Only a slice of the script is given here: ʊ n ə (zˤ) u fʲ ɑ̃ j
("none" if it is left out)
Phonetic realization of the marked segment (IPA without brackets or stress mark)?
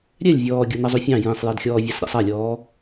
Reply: zˤ